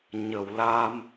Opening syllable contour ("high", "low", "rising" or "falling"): low